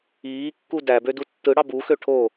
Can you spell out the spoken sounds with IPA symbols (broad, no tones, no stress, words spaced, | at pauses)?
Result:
iːkːu dæbø dutːɯɽɑ buxø ʈʰo